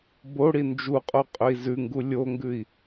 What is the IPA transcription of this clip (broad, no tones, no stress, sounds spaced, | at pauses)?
b o ɽ i n d͡ʒ u qʼ o qʼ ɵ i̯ z ʉ ŋ ɡ u lʲ o ŋ ɡ ʉ i̯